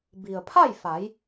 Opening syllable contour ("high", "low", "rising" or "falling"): low